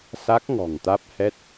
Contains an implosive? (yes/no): no